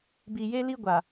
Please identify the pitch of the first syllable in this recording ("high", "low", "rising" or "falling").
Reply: low